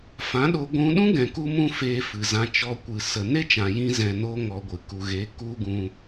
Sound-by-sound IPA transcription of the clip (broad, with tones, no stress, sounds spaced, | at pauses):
f ã˨˦ ɗ o˧ ɡʷ ũ˧ ɗ ũ˦ ɡ ɛ̃˨ k u˦ m ũ˦ f eː˧ f ɨ˨ z ã˧ t͡ʃ ɔ˧ kʷ ɨ˨ s ə˨ n e˦ t͡ʃ ã˨ j ĩ˧ z ɛ̃˨ n oː˧ ŋ ɔ˧ ɡʷ ɨ˨ k u˨ ɣ e˨˦ k u˦ ɡ ũ˧